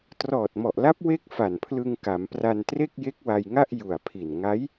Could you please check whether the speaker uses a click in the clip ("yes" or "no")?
no